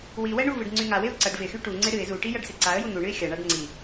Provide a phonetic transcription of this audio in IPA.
w i w ɛ ɳ u v ɨ ɖ ŋ͡ǀ y ŋ a w ɪ ʊ̯ ǀ ɐ ɖ v ɪ x y ʈ u ŋ͡ǀ ɪ ɾ ɨ ɪ̯ z u ʈ i j ɐ ɖ s ɪ ǀ a ə̯ j u n̪ u ɳ ɨ ɪ̯ xʲ ɐ ɳ a ɖ ŋ͡ǀ i

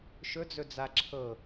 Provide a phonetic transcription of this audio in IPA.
ʃ ɵ d͡z ɵ d͡z a ǁʰ ɤ

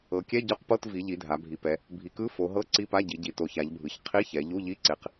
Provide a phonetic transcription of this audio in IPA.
ɤ˩˧ kʲ ɛ˧˥˧ ɟ ɔ˧˥˧ q p ɤ˧˥˧ t v i˩˧ ʎ i˩˧ dʱ a˩˧ bʱ i˩˧ p ɛ˩˧ | bʱ i˩˧ k ɯ˧˥˧ f o˩˧ ɦ ɤ˧˥˧ ǀ i˧˥˧ p a˧˥˧ ɟ i˩˧ ɟ i˩˧ t o˩˧ ç a˩˧ ʎ bʱ ɯ˩˧ ç qʰ i˧˥˧ ç ɛ˩˧ ʎ u˧˥˧ ʎ i˧˥˧ ǀ e˩˧ q

